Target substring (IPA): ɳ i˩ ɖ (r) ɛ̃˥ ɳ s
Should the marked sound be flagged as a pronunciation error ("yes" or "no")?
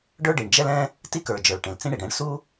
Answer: yes